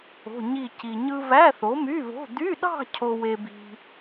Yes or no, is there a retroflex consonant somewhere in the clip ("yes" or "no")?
no